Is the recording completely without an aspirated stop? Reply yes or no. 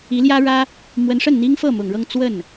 yes